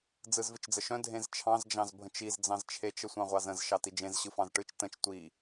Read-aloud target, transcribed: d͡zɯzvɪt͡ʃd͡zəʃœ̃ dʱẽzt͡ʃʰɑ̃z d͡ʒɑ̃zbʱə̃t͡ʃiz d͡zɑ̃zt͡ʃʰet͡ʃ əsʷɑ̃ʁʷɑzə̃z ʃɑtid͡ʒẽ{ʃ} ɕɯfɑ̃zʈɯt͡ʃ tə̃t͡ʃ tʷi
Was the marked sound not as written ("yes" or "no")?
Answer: yes